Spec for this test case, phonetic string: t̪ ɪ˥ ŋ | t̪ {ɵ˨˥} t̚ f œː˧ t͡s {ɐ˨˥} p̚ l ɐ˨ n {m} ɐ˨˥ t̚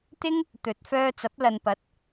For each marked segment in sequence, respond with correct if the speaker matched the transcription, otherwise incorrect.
correct, correct, incorrect: p

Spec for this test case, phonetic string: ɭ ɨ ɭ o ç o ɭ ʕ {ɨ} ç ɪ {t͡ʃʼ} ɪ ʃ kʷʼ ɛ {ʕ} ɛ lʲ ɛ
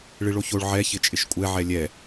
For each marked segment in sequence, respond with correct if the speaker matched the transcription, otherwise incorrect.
incorrect: ɛ, correct, correct

